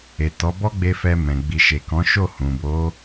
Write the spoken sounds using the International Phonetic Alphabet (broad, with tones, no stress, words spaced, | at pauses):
e˨ tɔ˨˦bɔ˦ɡ͡be˧ fɛ˧ mɛ̃˨ ɡ͡bi˨ʃe˨kɔ̃˨˦ ʃo˦˨hũ˨bo˨˦